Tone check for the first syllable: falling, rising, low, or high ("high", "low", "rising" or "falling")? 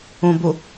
low